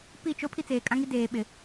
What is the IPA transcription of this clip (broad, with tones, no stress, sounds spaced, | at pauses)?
p i˦˨ t͡ʃ o˦ pʰ i˦ t͡s eː˨ kʼ ã˦ ŋ i˦ d eː˨ ɓ ɪ˨